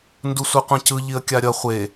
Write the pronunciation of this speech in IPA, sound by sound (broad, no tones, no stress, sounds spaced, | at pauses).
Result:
n d u sʷ ɛ qʷ ĩ c ɯ ʎ i ə̯ kʲ a ɾʲ ʌ χʷ e